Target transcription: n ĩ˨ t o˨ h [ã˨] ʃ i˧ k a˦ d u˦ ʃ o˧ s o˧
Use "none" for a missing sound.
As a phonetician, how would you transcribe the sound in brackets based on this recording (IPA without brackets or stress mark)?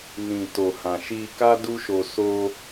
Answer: ã˨